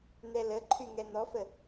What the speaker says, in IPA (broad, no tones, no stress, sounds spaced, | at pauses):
n̪ ɛ l ə ǃʰ y ŋ ɛ n̪ ɔ f ə